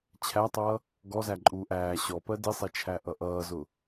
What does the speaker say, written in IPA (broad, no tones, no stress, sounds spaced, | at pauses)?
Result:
t͡ɕʰ æ tˤ ʌː | ɡ ɔ z æ ǃʼ uː ʔ æː ɕ ɔ p ɜ d i sˤ ɛ t͡ʃʰ æ ʔ ʌ ʔ ʌː z ʊ